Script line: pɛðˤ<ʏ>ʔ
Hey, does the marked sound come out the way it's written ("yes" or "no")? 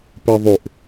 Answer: yes